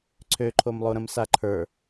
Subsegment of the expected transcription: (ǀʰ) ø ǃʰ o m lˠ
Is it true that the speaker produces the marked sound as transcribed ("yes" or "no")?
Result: yes